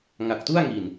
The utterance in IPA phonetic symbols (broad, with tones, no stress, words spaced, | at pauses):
ŋa˨˩k̚tu˥˩a̯ŋi˨˩n